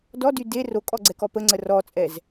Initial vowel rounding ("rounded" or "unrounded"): rounded